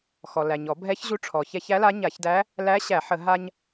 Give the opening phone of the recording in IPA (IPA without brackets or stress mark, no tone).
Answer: x